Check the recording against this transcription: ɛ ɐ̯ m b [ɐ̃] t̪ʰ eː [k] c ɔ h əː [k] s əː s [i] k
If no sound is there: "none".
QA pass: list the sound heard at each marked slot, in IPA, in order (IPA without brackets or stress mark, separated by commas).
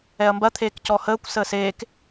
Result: ɐ, k, kʷ, e